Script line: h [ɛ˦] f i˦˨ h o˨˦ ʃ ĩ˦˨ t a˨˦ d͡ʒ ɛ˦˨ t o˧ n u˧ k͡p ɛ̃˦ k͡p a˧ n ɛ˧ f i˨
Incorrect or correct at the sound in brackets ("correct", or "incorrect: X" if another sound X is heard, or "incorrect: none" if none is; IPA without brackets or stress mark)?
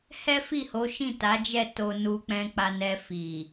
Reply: correct